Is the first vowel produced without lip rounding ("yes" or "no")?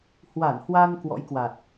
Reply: yes